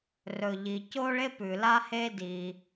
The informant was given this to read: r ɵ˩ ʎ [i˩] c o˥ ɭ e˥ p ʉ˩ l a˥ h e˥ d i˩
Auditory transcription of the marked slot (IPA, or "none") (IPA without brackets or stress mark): i˩